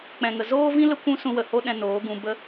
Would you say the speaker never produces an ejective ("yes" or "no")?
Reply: yes